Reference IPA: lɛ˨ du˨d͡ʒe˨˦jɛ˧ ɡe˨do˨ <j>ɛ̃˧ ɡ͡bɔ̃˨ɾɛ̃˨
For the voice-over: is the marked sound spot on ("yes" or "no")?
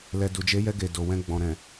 no